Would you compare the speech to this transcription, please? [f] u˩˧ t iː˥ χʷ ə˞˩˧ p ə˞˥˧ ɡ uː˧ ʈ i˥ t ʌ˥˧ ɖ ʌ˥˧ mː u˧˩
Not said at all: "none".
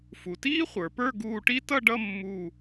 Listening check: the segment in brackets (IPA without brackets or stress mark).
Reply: f